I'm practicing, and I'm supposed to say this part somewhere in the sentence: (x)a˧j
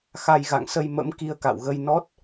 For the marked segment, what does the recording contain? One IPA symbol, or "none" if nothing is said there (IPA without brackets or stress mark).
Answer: x